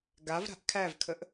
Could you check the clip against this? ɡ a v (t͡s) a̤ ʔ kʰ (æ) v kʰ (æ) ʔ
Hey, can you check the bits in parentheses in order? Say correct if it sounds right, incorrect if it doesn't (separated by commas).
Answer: incorrect, correct, incorrect